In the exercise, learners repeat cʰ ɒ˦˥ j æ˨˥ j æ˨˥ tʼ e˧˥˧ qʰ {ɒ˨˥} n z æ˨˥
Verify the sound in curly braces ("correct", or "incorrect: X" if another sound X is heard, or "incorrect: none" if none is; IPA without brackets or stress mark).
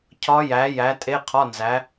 incorrect: ɒ˧˥˧